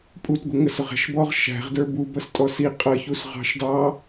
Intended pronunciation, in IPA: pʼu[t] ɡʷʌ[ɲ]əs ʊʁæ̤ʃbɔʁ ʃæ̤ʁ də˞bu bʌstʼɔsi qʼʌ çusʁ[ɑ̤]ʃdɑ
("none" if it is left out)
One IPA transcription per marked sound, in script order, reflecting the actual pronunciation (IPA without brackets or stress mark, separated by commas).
t, ŋ, ɑ̤